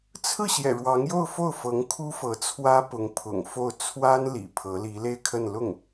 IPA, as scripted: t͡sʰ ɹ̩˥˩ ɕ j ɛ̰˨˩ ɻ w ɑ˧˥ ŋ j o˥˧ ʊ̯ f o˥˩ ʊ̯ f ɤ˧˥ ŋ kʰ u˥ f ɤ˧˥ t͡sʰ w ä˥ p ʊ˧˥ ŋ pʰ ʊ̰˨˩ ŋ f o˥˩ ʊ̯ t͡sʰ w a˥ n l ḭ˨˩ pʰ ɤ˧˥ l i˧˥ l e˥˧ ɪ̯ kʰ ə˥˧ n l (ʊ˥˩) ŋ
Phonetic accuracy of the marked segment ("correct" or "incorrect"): correct